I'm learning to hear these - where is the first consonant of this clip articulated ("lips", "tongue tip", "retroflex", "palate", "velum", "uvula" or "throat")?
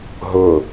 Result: throat